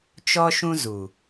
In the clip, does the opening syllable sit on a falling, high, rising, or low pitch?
high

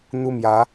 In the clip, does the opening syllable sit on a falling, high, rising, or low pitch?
high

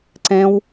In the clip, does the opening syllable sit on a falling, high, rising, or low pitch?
high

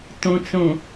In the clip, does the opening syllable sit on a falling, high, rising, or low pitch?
low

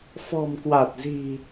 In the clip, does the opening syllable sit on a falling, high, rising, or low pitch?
low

